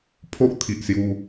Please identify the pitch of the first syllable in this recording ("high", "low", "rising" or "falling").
high